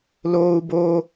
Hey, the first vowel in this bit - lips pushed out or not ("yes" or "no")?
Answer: yes